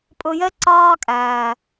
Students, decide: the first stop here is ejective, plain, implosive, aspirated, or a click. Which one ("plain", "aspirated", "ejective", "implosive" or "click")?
ejective